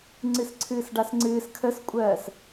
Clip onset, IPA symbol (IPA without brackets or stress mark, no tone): ŋ͡ǀ